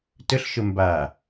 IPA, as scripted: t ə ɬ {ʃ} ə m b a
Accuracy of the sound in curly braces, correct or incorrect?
correct